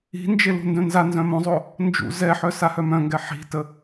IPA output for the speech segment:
i̤ n d͡ʒ e l ṳ n d œ̃ n z a n z œ̃ m õ zˤ o | n d͡ʒ ṵ z ɛ ħ œ s a h œ m œ̃ ŋ ɡ ɛ ħ i̤ t ə

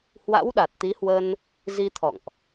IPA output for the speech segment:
h w a̰˧˥ w ɗ a˨˩ t̚ t̪ i˨˦ h w ə˧ n | z i˧ t̪ʰ ɔ̰˧˨ ŋ ʔ

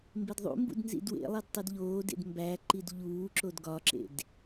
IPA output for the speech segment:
m b e d ðˤ ṵ m b ṵ d n z ḭ d w ḛ lˠ i d tˤ i d ʎ oː d ḛ d m b æ ǃ i d ʎ uː ǁ o d ɡ ɒ ǁ ḛ d

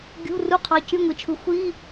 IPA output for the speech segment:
ɡʲ ṳ˧˥˧ r u˧˥˧ qʰ ɑ˨˥ c y˧˥˧ ŋʷ i˩˧ t͡ʃʰ ɯ˨˥ xʷ i˧˥˧

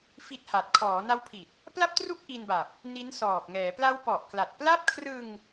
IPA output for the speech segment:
f i˦˥ t̚ h a˨˩ t̚ kʰ ɔː˩˦ n a˦˥ w pʰ i˨˩ t̚ | p l a˥˩ p̚ t r u˥˩ k̚ ʔ i˧ n b a˨˩ p̚ | n i˦˥ n s ɔː˨˩ p̚ ŋ ɛː˩˦ p l a˦˥ w p ɔ˨˩ ʔ k l a˨˩ t̚ p l a˥˩ p̚ kʰ r ɯ˧ ŋ

